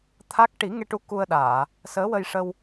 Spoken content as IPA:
t̪ʰ a˦˥ k̚ ʈ i˨˩˦ ŋ e˧ ʈ u˧˥ k u˧ ə̯ ɗ aː˨˩˨ | s əː˧˥ w ə˧ j ʂ ə˧ w

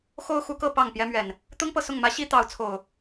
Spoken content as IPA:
x o˦ ʊ̯ x u˨˦ k ɤ˥˨ p ɑ˥˨ ŋ p j ɛ˦ m ɥ ɛ˨˩ n | t̪ ʊ˦ ŋ p ɤ˨ s ʊ˥˨ ŋ m ä˦ ɕ i˦ t̪ ɑ˨˦ ʊ̯ t͡sʰ o˨˩ ʊ̯

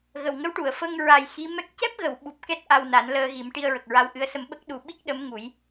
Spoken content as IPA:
ɣ ə˨˩ w ŋ ə˧˥ w ʈ u˨˩˨ ə̯ f ə˧ ŋ ɹ a˨˩ j x i˧˥ m ɛ˦˥ k̚ c ɛ˦˥ p̚ ɣ ə˨˩˨ w ɓ u˨˩ p̚ k ɛ˦˥ t̚ ʔ a˧ w n a˨˩˦ n l əː˧ ɣ i˨˩˦ m ʈ i˧ ə̯ ɹ ə˨˩ k̚ ɹ a˧ w ʔ ɨ˧˥ ə̯ s ə˧ m ɓ ə˦˥ k̚ ɗ u˨˩ ɓ i˦˥ k̚ ɗ ə˧˥ m ŋ u˨˩˦ j

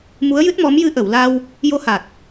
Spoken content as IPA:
m u˧˥ ə̯ j ɨ˦˥ t̚ m ɔ˧˥ m j ɨ˧˥ ʔ ə˨˩˨ w l a˧ w | j o˧˥ h a˨˩ t̚

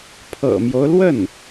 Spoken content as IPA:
pʰ ɤ̰˨˩ m j o˦ ʊ̯ l w ə˥˩ n

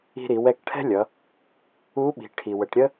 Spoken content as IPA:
i̤˧ ɾ i˩˧ w ɛ˧ k ʈʰ ɛ̤˥ lʲ ʌ˩˧ | u˧˥ ɓ i̤˩˧ ʈʰ i˩ w ə˩˧ ʈ ɾʲ ə˥

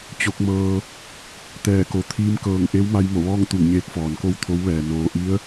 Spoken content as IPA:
t͡ɕ o˧˥ k̚ m ɤː˧ | t̪ ɛː˧˩ k o˩˧ t̪ʰ iː˧ m k ɤː˧˩ ŋ ʔ e˧˥ w m a˧ j m o˧˩ ʋ ɔː˥˨ ŋ t̪ u˧˩ ŋ ɲ eː˧ k̚ f ɔː˩ n k o˥˨ w t̪ʰ o˧˥ w ʋ ɛː˩ n oː˩ ʔ i˧˥ ə̯

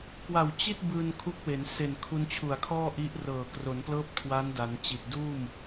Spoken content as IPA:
k w a˨˩ w t͡ɕ i˥˩ t̚ b ɯː˧ n kʰ u˦˥ k̚ w e˩˦ n s e˨˩ n kʰ u˧ n t͡ɕʰ u˨˩ a̯ kʰ ɔː˥˩ ʔ i˦˥ ʔ r ɤː˨˩ k r o˩˦ n p l ɤː˦˥ p̚ kʰ w a˦˥ n d a˩˦ n t͡ɕ i˨˩ t̚ d uː˥˩ m

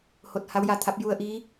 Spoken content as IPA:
h o˧ t̚ h a˧˥ w j a˧ t̪ʰ a˧˥ p̚ j u˧ ə̯ ʔ iː˧˥

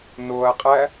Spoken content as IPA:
n o ɐ̯ qʼ æ

